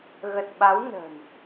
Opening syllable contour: low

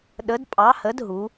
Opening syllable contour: rising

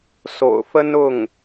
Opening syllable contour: low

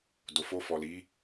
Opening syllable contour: low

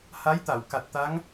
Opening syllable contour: rising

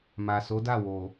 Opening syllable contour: low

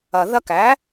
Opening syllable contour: low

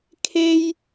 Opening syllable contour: high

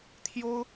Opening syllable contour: high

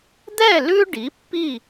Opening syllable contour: falling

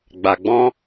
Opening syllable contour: low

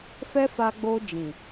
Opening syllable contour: high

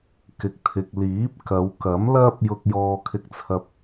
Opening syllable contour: low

